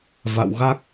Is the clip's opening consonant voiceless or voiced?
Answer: voiced